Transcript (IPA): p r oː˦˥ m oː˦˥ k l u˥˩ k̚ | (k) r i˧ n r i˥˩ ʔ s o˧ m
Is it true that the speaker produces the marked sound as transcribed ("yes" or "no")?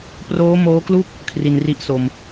no